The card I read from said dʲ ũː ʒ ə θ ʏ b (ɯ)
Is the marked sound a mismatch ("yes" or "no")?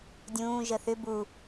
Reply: yes